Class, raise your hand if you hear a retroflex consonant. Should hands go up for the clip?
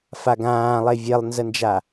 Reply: no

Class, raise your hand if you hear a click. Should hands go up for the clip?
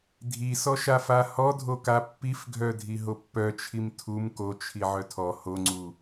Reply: yes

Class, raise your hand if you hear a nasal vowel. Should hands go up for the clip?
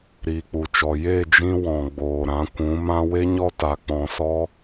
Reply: yes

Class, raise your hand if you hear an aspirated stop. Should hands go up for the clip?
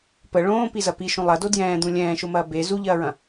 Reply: no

